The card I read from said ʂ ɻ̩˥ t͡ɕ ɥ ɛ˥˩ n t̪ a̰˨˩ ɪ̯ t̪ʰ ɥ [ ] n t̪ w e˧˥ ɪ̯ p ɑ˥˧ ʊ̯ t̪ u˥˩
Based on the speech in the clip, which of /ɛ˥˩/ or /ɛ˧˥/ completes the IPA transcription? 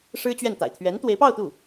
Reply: ɛ˧˥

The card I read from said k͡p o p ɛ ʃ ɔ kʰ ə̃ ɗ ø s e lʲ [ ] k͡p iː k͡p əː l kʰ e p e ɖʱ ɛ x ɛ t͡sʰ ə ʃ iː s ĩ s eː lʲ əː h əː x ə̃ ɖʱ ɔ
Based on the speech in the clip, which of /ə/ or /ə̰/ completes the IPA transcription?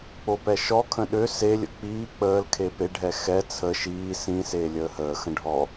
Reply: ə̰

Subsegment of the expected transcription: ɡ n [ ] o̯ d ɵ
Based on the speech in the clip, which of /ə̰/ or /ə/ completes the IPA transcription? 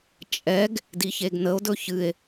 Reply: ə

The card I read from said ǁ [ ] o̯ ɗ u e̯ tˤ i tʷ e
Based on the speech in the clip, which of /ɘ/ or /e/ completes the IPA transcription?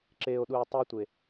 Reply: e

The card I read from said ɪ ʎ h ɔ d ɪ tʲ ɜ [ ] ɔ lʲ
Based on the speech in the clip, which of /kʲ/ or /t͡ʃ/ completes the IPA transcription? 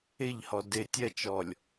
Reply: t͡ʃ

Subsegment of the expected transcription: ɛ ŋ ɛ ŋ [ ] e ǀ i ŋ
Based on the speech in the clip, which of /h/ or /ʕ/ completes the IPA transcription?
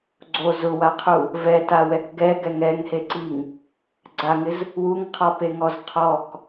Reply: h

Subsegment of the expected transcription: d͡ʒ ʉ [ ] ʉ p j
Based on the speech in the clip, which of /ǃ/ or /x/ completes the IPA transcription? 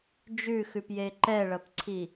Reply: x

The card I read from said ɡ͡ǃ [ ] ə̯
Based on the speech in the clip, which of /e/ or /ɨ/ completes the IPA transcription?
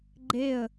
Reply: e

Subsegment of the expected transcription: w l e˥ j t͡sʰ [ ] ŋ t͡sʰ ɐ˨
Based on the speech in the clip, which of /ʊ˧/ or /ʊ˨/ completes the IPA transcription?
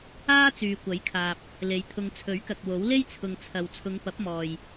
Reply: ʊ˨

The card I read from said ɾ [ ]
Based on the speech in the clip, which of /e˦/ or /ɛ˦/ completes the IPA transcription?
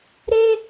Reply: e˦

